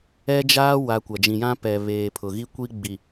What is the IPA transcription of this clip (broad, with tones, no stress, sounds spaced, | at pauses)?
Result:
ɛ˦ d͡ʒ aː˦ w a˨ kʷ a˨ d͡ʒ ĩ˨ j ã˦ p ɛ˨ β eː˨ pʰ ʊ˨ ɣ i˦ kʷ i˦ ɡ͡b i˨